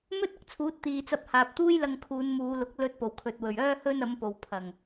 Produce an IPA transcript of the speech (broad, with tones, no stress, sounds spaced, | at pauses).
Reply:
m ɵ˥ t̚ ʊ˨˥ k̚ t͡sʰ uː˨˥ t̚ t̪ iː˨ t͡s ɐ˧ p̚ h aː˨ p̚ t̪ uː˥ j l ɐ˧ ŋ kʰ uː˨˧ n m uː˨˧ l ʊ˨˥ k̚ l ɵ˧ t̚ p o˨˩ w kʰ ɵ˨ t̚ w ɵ˨˩ ɥ œː˥ h ɵ˥ n ɐ˨˥ m p o˨ w pʰ ɐ˨˩ ŋ